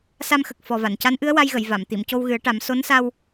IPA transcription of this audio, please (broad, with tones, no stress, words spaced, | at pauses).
sa˧mxə˨˩k̚ fɔ˨˩va˨˩˨nca˧˥nʔɨ˧˥ə̯ wa˧jɣə˨˩˨j va˨˩˨m t̪i˨˩˨mco˧wɣɨ˨˩˦ə̯ʈa˨˩˦m so˧˥nsa˧w